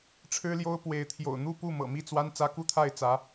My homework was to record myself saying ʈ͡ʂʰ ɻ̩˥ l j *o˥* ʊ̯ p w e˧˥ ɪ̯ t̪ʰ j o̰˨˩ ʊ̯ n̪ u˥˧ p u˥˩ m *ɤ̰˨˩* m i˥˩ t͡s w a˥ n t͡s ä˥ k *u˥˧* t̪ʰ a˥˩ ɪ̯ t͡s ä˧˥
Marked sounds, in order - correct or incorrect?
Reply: correct, correct, correct

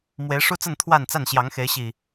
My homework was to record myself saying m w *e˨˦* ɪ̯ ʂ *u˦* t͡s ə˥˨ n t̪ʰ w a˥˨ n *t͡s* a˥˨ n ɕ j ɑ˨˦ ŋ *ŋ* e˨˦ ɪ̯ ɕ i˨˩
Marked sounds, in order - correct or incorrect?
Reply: correct, correct, correct, incorrect: x

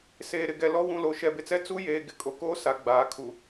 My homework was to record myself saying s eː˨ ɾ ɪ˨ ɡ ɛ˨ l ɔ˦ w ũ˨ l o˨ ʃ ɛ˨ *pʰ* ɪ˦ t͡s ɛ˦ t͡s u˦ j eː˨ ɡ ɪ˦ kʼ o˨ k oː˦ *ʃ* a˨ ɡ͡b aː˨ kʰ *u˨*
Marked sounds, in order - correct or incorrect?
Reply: incorrect: b, incorrect: s, correct

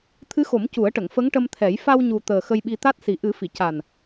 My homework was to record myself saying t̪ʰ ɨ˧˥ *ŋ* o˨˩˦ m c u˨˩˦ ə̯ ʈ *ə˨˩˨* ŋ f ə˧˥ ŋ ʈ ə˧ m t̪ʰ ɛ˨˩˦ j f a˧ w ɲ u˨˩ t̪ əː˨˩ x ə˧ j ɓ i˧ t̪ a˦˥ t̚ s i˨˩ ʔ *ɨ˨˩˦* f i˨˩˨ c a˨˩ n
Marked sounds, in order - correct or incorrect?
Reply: incorrect: x, correct, correct

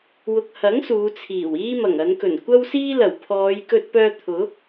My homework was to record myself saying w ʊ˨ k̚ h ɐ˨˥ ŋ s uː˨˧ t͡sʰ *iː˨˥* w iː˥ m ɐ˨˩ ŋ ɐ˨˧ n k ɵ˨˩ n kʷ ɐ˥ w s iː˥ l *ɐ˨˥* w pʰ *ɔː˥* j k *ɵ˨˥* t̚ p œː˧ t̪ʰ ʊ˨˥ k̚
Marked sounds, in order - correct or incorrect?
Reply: incorrect: iː˨˩, incorrect: ɐ˨˩, incorrect: ɔː˨˧, incorrect: ɵ˧

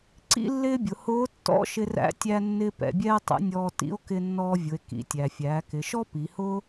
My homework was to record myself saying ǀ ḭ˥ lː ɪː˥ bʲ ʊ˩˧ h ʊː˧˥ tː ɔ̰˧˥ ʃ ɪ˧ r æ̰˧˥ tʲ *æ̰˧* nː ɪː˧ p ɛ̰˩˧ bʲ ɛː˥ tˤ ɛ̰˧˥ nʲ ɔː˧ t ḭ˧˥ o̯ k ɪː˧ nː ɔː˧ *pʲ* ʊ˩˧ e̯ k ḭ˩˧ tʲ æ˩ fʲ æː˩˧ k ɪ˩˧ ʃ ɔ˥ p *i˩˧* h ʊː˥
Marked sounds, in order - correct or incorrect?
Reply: incorrect: æ˧, incorrect: vʲ, correct

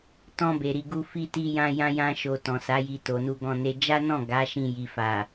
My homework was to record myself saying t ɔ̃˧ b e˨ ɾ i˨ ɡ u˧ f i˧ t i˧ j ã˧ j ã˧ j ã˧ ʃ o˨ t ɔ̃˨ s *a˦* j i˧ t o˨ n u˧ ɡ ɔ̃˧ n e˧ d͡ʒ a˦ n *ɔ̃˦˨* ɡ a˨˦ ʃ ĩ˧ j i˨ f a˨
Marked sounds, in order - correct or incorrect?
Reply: incorrect: a˨˦, correct

